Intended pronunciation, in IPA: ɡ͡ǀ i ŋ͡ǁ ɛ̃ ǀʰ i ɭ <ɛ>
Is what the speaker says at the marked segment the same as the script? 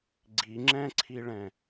no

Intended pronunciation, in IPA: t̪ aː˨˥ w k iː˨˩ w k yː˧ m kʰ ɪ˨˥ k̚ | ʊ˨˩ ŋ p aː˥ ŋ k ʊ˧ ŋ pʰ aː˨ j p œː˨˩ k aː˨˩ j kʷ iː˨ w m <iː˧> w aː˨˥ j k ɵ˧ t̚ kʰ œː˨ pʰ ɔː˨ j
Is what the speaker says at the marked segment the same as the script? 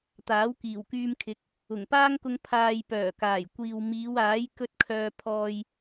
no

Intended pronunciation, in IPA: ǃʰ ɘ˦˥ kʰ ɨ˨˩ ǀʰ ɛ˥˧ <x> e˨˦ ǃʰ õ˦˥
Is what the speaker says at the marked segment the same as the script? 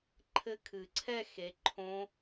yes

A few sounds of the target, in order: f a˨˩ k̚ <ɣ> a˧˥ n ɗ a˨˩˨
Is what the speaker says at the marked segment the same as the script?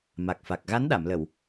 yes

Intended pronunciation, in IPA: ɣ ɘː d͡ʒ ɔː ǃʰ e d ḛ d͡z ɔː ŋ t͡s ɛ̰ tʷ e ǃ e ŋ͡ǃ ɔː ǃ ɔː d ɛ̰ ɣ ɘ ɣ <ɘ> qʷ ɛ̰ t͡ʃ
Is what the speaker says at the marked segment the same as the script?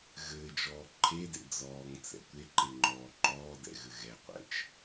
no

